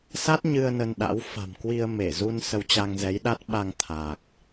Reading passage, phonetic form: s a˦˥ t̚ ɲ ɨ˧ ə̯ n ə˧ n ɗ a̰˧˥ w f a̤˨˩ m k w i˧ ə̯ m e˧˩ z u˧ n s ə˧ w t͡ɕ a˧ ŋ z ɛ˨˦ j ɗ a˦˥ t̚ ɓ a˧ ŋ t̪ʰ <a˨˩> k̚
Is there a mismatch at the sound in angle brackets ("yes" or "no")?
no